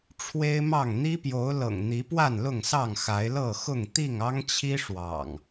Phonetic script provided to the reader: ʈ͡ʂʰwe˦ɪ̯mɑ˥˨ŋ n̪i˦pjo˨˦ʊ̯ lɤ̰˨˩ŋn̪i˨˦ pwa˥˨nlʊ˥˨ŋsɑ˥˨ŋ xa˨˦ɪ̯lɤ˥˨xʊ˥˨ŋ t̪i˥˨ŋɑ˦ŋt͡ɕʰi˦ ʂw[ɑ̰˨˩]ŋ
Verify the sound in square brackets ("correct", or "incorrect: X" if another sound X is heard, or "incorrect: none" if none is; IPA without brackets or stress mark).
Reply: correct